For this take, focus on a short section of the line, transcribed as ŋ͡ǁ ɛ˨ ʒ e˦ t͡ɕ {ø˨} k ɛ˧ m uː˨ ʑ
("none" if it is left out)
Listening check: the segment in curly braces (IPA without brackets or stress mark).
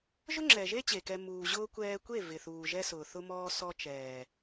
e˨